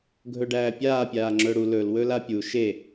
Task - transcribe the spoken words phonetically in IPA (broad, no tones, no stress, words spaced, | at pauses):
ɡʱɵɖæːpʲaː pʲaːŋ͡ǁɵɽu lɵl wɵlapʲu ʃe